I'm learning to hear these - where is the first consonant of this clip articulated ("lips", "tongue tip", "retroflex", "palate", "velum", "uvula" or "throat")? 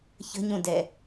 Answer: palate